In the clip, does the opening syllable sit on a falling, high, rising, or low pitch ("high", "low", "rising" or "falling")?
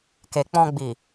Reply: low